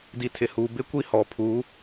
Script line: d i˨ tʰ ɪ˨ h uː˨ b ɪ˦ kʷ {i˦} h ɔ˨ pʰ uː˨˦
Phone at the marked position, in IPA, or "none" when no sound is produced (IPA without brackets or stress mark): i˦